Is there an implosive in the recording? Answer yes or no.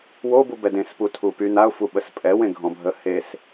yes